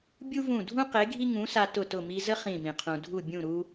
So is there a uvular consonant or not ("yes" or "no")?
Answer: yes